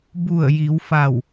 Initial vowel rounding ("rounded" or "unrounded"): rounded